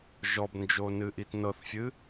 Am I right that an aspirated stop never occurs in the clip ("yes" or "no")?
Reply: yes